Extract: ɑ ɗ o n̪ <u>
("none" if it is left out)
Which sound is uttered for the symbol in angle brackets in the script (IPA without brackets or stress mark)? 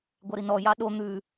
ʉ